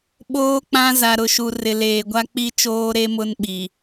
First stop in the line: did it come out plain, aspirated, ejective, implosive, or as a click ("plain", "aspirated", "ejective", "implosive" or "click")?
implosive